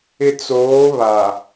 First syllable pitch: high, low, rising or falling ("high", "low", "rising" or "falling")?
low